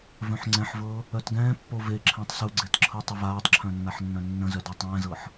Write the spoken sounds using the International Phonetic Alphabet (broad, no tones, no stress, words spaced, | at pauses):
vœ̃ħŋ͡ǀɛ̃ħvɤ | œtɡɛ̃ːpːo veǁʰɛ̃tˤ suɡ͡ǀet ǁʰɤtˤəvaːtˤǁʰœ̃ nːaħnːœ̃nːə̃zœ dɤtˤɛ̃ːzɤħ